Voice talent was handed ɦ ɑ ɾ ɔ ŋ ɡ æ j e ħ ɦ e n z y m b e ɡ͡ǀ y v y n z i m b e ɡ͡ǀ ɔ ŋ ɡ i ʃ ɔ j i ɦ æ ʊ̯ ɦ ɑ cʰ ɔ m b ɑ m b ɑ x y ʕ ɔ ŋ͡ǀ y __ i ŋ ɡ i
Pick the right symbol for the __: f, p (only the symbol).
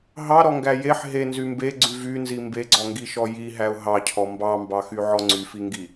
f